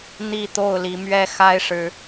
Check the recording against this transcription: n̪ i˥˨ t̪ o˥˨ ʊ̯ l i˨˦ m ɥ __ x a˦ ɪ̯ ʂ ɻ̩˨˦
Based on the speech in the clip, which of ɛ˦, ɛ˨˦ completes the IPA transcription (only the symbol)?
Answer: ɛ˦